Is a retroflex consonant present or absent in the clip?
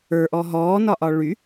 present